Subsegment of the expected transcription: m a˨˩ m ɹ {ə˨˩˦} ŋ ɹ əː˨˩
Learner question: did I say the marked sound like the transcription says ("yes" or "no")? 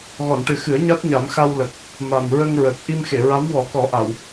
no